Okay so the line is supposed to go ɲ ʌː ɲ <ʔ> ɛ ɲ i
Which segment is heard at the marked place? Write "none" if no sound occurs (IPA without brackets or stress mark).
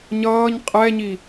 qʼ